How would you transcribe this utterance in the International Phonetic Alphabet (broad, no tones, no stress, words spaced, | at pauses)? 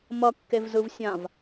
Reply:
mʌkːevzɯv sʲãv